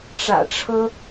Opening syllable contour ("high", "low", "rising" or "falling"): low